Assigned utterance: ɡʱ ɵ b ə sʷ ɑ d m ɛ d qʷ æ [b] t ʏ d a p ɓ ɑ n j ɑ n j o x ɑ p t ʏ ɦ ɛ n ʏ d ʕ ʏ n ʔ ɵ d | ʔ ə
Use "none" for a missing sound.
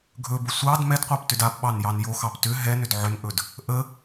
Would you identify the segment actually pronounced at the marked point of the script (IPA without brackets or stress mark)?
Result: p